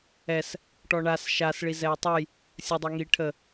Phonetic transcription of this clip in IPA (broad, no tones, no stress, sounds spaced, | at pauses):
ɛ s | ʈ ɔ ɳ a s ʃ a s ɭ i z ɛ j tˤ ʊ j | sʲ ə dˤ e ŋ i ʈʰ ə